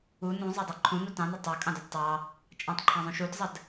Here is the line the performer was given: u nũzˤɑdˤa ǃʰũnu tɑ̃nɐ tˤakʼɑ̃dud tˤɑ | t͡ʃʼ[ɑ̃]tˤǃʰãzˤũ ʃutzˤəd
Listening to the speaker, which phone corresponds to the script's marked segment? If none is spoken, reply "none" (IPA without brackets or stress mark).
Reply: ã